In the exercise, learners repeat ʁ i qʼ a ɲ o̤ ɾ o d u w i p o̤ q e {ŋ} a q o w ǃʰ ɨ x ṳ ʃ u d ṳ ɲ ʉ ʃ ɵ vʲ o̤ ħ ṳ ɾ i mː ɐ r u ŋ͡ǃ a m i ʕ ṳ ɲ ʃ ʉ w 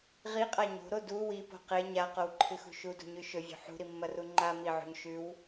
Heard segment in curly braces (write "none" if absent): ɲ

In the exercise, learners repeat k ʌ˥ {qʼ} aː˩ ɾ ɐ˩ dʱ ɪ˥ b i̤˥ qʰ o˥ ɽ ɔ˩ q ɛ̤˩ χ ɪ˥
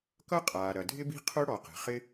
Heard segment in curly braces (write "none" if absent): qʼ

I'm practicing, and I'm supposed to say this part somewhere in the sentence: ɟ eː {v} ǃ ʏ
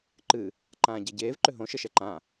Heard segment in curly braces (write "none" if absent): v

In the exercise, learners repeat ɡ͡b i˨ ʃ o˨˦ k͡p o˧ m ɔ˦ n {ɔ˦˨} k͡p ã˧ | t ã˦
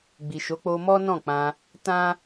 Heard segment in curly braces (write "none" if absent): ɔ̃˦˨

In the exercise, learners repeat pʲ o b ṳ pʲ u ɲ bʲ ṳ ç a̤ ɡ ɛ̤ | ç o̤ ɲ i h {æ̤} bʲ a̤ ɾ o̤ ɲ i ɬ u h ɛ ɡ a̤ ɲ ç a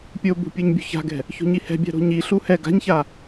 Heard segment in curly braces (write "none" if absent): ɛ̤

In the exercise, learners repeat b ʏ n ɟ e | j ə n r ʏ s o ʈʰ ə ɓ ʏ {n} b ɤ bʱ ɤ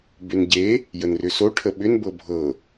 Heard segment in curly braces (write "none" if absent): n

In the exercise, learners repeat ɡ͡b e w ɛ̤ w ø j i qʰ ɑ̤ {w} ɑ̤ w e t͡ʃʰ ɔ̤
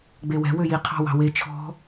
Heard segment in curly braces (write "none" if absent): w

